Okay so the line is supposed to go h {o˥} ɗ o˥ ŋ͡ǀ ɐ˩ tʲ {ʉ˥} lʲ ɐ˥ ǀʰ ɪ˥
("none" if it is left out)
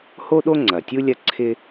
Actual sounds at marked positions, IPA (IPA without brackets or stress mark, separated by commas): o˥, u˥